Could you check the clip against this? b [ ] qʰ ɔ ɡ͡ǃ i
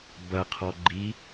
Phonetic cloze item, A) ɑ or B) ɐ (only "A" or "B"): B